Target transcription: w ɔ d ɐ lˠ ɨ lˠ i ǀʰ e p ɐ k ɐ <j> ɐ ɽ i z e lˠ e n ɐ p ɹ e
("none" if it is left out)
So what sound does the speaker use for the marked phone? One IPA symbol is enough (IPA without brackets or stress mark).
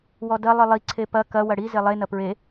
w